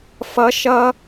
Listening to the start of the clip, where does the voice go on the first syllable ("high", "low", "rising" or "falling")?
rising